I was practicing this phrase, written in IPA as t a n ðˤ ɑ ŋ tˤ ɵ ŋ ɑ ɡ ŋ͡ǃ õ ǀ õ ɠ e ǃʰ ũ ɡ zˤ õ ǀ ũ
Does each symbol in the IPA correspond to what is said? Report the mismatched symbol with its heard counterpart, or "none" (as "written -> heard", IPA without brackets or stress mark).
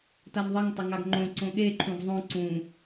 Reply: none